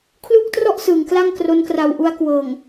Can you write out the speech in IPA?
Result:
kʰ l u˥˩ k̚ t r ɔ˥˩ ʔ s ɯː˩˦ ŋ k l a˥˩ ŋ k r o˦˥ n k r a˧ w ʔ u˧ a̯ k w ɤː˨˩ ŋ

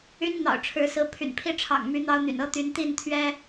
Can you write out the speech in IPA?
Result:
y˦ n n̪ ɑ̰˨˩ ʊ̯ ʈ͡ʂʰ ɻ̩˨˦ s ɹ̩˨˦ pʰ y̰˨˩ n pʰ i˥˨ ʈ͡ʂʰ ɑ̰˨˩ ŋ m y˨˦ n̪ ɑ˦ ʊ̯ n̪ y̰˨˩ n ɤ˦ t̪ y˨˦ n t̪ i˥˨ n t̪ʰ ɥ ɛ˦

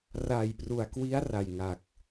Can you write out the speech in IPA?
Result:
r a˨˩ j p r u˨˩ a̯ k w i˦˥ a̯ r a˨˩ j ŋ a˨˩ k̚

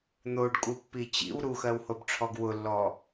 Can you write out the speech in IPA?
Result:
n̪ o ɖ kʼ u pː i t͡ɕ ḭ w ɾ u x ɜ w h o b ʈ͡ʂʰ ɔ ɡ w ʊ lː ɔ

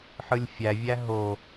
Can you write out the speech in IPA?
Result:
ħ ɯ lʲ fʲ æ vʲ æ ɦ o

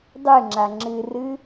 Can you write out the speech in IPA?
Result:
dˤ ɨ ŋ͡ǁ a ŋ͡ǁ ɨ r ɨ

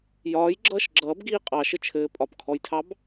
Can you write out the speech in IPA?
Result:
j ɒː j ɡ͡ǁ ʌː ʃ ɡ͡ǁ ʌː b ɡ iː qʼ ɑ ʃ ɘ t͡ʃʰ ɘː pʼ ɒ p kʰ ɔ j tʰ ɑ b

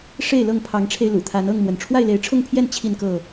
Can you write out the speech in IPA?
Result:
ʂ e˥˨ ɪ̯ l ɤ˥˨ ŋ pʰ ɑ˨˦ ŋ ʈ͡ʂʰ e˧ ɪ̯ l ṵ˨˩ t̪ʰ a˨˦ n ɤ˥˨ ŋ m w ə˩ n ʈ͡ʂʰ w a˥˨ ɪ̯ l e˨˦ ɪ̯ ʈ͡ʂʰ ʊ˥˨ ŋ pʰ j ɛ˥˨ n t͡ɕʰ i˥˨ n k ɤ˥˨

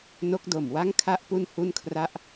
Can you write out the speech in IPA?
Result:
n o˦˥ k̚ d o˨˩ m w a˥˩ ŋ kʰ a˥˩ ʔ p u˥˩ n h u˥˩ n kʰ r a˥˩ ʔ

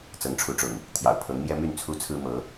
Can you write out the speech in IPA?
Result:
t͡s ɤ˨˦ ŋ ʈ͡ʂʰ u˨˦ ʈ͡ʂ ʊ̰˨˩ ŋ | t̪ʰ j ɑ̰˨˩ ʊ̯ pʰ ɤ˨˦ ŋ m j ɛ˦ m y˥˨ n t͡sʰ u˦ t͡sʰ ɹ̩˦ m ɤ˨˦

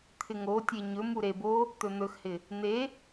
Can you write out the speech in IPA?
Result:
t̪ʰ ɪ ŋ o tʲ e ɲ ɵ m u ɾ e b o | t̪ ɵ n̪ ɵ x h ɪ | n̪ e

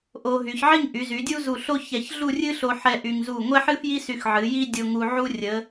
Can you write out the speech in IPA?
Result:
ʔ o˧ ɦ y˩˧ ç ʕ i˥˧ ŋ ʔ y˩˧ z y˩˧ dʲ u˥ z u˧˩ ɬ o˥ ç ɛ˧˩ ç ɮ u˥˧ rʲ ɨ˥ ɬ o˧ ħ ɛ˥ ʔ y˧ ŋ z u˧˩ ŋʷ ɛ˥ ħ ɨ˥ f j i˥ s y˧ x ʕ ɨ˩˧ j i˥ dʲ o˧ ŋ u˧ ʕ u˥ rʲ ə˩˧

